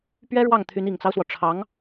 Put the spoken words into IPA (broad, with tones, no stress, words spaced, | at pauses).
pɥɛ˥ɻwɑ˥˩ŋt̪ʰy˧˥n i˨˩ŋt͡sɑ˦ʊ̯swɔ˩ ʈ͡ʂʰɑ˧˥ŋ